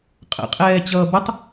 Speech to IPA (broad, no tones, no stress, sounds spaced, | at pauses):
qʼ ə̰ qʼ ɛː t͡ɕ ʌː b ʌ tˤ